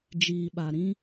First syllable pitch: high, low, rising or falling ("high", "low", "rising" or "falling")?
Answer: low